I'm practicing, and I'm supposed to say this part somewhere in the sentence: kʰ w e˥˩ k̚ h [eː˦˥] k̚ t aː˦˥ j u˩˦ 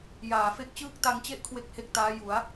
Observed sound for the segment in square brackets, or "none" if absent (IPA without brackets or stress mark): e˦˥